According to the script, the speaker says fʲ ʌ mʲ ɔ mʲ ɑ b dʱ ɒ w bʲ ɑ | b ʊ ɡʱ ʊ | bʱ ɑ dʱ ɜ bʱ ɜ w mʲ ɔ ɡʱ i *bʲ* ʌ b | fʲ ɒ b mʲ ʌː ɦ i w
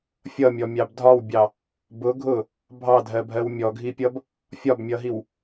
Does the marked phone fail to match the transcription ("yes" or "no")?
yes